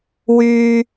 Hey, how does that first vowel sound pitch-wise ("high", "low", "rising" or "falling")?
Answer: high